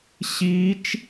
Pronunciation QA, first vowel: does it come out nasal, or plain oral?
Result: oral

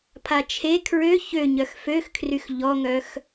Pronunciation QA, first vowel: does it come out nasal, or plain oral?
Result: oral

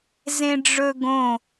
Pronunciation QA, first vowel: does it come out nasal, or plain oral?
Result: nasal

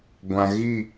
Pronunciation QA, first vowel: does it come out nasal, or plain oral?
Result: nasal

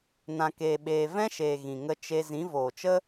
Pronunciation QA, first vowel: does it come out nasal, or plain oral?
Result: nasal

